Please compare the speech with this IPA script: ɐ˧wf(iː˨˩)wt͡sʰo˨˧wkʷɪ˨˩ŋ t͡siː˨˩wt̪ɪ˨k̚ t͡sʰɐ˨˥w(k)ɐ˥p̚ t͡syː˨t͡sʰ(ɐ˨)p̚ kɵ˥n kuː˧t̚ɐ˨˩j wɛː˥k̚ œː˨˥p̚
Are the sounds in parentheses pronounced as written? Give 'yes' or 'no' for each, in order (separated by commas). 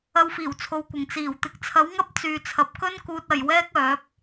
yes, no, yes